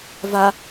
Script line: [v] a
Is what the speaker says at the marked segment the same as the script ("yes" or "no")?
yes